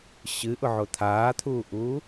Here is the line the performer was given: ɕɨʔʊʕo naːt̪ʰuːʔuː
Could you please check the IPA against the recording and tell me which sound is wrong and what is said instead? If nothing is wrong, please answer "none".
n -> t̪ʰ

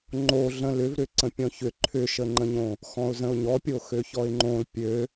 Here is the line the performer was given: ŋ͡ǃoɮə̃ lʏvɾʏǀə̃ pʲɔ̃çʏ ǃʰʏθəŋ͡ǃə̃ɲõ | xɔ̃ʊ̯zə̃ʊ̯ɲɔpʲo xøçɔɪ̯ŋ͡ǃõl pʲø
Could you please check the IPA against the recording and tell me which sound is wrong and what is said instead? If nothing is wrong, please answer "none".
θ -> ʃ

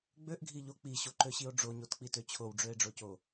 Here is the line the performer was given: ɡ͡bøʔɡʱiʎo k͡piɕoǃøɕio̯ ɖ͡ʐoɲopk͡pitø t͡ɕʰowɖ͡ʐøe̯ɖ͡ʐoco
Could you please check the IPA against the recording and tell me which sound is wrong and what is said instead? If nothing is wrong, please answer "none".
p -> t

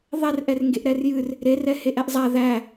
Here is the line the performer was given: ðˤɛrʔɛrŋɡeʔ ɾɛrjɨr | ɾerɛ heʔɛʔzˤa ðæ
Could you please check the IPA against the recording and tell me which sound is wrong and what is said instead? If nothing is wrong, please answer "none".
none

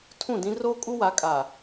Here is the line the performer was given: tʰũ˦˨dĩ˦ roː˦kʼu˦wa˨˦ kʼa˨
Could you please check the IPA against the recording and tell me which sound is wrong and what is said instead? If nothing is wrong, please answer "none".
none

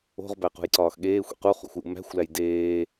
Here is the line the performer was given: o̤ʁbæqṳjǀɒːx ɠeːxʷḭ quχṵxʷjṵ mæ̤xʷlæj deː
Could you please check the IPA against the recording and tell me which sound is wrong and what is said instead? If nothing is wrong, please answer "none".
none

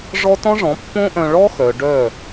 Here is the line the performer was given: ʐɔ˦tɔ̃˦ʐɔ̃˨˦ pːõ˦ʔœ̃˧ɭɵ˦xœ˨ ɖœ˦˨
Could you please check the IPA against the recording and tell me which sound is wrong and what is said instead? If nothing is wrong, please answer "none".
ɵ˦ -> ɔ˦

